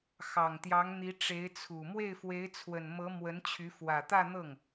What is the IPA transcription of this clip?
x ɑ˨˩ ŋ t̪ j ɑ˧˥ ŋ n̪ i˧˥ ʈ͡ʂ e˧˥ ɪ̯ t͡sʰ u˨˩ m w e˥˩ ɪ̯ f w e˧˥ ɪ̯ t͡sʰ w ə˨˩ n m ɤ˧˥ m w ə˧˥ n t͡ɕʰ y˧˥ f w ä˨˩ t̪ ä˥˧ n̪ ɤ˥˩ ŋ

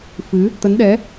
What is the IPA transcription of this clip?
f ɨ˨˦ | t̪ ə˨˦ n ɗ ɛ˨˦

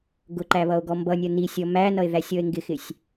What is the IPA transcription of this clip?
ɡ ʊ ǃ æ β ʌ o̯ ɡ ɔ m b ʌ nʲ ʌ n i sʲ ɔ m æ n ʌ e̯ ð æ sʲ ɔ e̯ ŋ ɡ ɪ x ɪ sʲ

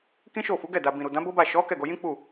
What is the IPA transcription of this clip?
k ĩ˦ ʃ o˦˨ f u˨˦ ɡ ɛ˦˨ d a˨ b ĩ˨ ɾ u˨ d ã˨˦ b o˦ b a˦˨ ʃ ɔ˨˦ k ɛ˦˨ ɡ o˧ j ĩ˦ k͡p u˦˨

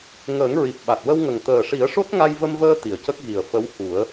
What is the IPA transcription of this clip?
ŋ əː˨˩˦ ŋ ɹ i˨˩ p̚ ɓ a˨˩ t̚ w ə˧ w ŋ ə˨˩ ŋ t̪ əː˨˩ ʂ i˨˩˦ ə̯ ʂ o˦˥ t̚ ŋ a˧ j v ə˧ m v əː˧ t̪ i˨˩˨ ə̯ c ə˦˥ k̚ ɣ i˨˩ ə̯ f ə˧˥ w h u˨˩˦ ə̯

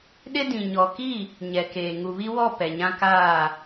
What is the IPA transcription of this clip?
ɗ ɪ˦ d ĩ˨ ɲ ɔ˨ k i˦˨ | ɲ ɛ˨ k eː˨ ŋ u˨ β i˦ w ɔ˦˨ p ɛ˨ ɲ ã˦ k aː˦˨

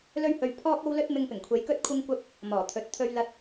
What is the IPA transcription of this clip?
l ɵ˥ ɥ h ɵ˧ ɥ pʰ ɔː˥ k̚ o˥ w l ɵ˥ t̚ m ɪ˧ ŋ p ɪ˨˩ ŋ kʷʰ e˨˧ j k ɵ˥ t̚ kʷʰ ɪ˥ ŋ kʷ ɐ˥ p̚ | m ɔː˨˩ t̪ʰ ɵ˨˥ t̚ t̪ʰ ɵ˥ ɥ l ɐ˥ t̚

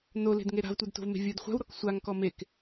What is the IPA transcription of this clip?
n o l e̤ d ŋ e ɾ a̤ v tʷ e d t o̤ v m e̤ vʲ ɯ d χʷ a̤ w ɾ ɔ k sʷ a ŋ k ɔ m e k

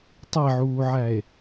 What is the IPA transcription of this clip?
tˤ e ʕ uː ʕ æ e̯

